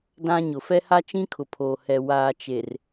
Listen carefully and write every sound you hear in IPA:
d ã˦ ɲ ʊ˨ f ɛ˦ h a˦ t͡ʃ ĩ˦ kʰ ʊ˨ pʰ oː˨ h ɛ˨ w aː˨ t͡ʃ e˨ r

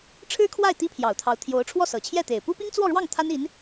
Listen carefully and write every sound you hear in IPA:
ʈ͡ʂʰ ɻ̩˥ kʰ w a˥˩ ɪ̯ t̪ i˥ pʰ j ɑ˨˩ ʊ̯ t̪ʰ ɑ˧˥ ʊ̯ t̪ʰ j o˧˥ ʊ̯ ʈ͡ʂʰ w ɔ˥˩ s ɤ˨˩ t͡ɕʰ j ɛ˥˩ t̪ e˨˩ ɪ̯ p u˥ p i˥ ŋ t͡s w ɔ˥˧ ɻ w ɑ˥˩ ŋ t̪ʰ a˥ n i˧˥ n

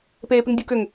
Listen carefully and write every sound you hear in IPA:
p eː p ɪ ŋ dʲ u k ʏ ŋ

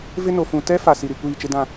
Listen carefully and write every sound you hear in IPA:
v ɪ˦ n o˨ f ũ˨ t ɛ˦ f a˨ s i˨ ɾ i˨ kʷ iː˦˨ t͡ʃ ɪ˦ d ã˦˨

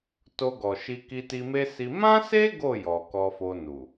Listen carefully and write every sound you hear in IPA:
t o˧ ɡ ɔ˨ ʃ i˧ k i˧ t i˧ m e˦ s i˧ m ã˦ s e˦ ɡ o˦˨ j ɔ˨ k ɔ˧ f o˧ n u˨

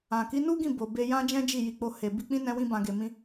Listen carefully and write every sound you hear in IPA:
ã˨ k i˨˦ n u˦ ɡ ĩ˦˨ b o˨ b e˧ j ã˦ d͡ʒ ɛ̃˦ d͡ʒ i˦˨ j i˧ k͡p o˦ h e˧ b i˧ k͡p ĩ˦ n ɛ̃˦ w ĩ˦ b ã˧ ɡ e˧ m ĩ˦

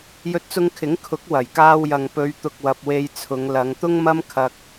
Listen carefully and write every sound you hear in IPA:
j ɵ˧ t̚ t͡s ʊ˧ ŋ kʰ ɪ˨˥ ŋ kʰ ʊ˨˥ k̚ w ɐ˨˩ j k aː˧ w j ɐ˨ ŋ p ɵ˨˧ ɥ t̪ ʊ˨ k̚ w ɐ˨ p̚ w e˧ j t͡sʰ ʊ˨˧ ŋ l ɐ˨˧ ŋ t̪ ʊ˥ ŋ m ɐ˥ m kʰ ɐ˧ k̚

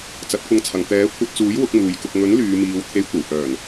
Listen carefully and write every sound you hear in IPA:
t͡s ɐ˨˥ t̚ kʷ ɐ˧ ŋ t͡sʰ ɐ˨ ŋ t̪ ɛː˨˥ kʷʰ ɐ˧ t̚ t͡s uː˨˥ j w ʊ˨˥ k̚ m uː˨ j k ʊ˧ k̚ ŋ ɵ˨˥ n l yː˨˧ m iː˨˧ w t̪ʰ e˨˧ j kʷ ɐ˨˩ w h œː˨˩ n

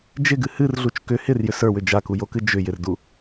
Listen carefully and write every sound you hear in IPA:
d͡ʒ ɪ ɡ ɨ h ɨ r ɮ u t͡ʃ k ʏ h ɪ r j ʏ s ə˞ w ʏ d͡ʒ a k u j o k ɨ d͡ʒ ʏ j ɪ r d u

